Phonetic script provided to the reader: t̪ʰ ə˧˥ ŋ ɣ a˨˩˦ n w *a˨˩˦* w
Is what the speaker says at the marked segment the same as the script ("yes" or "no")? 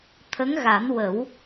no